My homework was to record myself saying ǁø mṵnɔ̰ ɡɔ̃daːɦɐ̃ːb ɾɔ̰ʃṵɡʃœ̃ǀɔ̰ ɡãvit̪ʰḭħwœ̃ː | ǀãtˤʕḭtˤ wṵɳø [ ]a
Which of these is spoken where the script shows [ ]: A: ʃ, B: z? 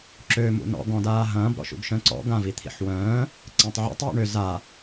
B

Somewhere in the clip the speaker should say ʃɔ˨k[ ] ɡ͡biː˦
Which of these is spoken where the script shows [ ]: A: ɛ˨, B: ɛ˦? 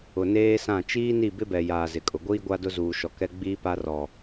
B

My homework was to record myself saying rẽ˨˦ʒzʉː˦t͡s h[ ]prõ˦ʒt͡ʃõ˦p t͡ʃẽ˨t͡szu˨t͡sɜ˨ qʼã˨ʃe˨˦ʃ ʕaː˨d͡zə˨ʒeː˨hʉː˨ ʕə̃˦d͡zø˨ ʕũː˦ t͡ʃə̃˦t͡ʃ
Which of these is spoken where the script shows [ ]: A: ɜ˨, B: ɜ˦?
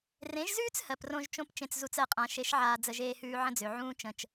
A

